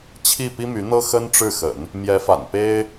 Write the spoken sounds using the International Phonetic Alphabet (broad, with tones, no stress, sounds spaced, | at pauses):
t͡ɕʰ i˥˩ p i˥ m y˧˥ n̪ ɤ˥ x ə˥ n ʈ͡ʂ ɻ̩˥˩ x ə̰˨˩˦ n | m j ɛ˧˥ f a̰˨˩ n p e˥ ɪ̯